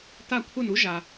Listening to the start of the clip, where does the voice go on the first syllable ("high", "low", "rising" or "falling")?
falling